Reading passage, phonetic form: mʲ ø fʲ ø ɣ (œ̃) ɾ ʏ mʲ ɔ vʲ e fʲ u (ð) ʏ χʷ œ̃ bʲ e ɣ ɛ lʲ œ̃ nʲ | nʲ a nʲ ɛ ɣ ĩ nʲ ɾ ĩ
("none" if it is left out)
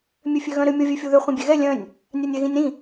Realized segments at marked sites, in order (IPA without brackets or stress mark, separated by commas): œ̃, ð